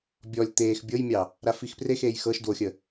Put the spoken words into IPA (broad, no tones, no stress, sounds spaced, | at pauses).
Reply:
bʲ ɔ lʲ t̪ eː x bʲ ɤ j mʲ ɑ | ɾ a f i x p r e x eː j x ɤ ʃ d w o xʲ ə